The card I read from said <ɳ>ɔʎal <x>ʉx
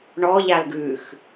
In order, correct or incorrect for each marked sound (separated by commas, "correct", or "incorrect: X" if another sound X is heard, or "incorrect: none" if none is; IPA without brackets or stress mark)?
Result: correct, incorrect: ɡ